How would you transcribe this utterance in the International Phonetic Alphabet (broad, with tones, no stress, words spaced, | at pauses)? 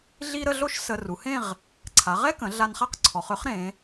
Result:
ɮi˥ ɾə˥˧ɮo˥˧ʃ sə˧ ru˩˧hẽ˥˧ʁ | ǀʰa˩˧ʁɛ˥kə̃˩˧ ɮa˧nχa˥˧q ǀʰɔ˩˧χ ø˥χɾẽ˩˧